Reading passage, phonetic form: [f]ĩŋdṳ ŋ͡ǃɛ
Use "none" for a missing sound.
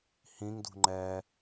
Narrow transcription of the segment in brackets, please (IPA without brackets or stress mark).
h